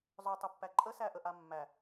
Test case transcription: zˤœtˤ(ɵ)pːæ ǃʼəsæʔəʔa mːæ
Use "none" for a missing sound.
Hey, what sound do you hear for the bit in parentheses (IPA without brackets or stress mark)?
ɵ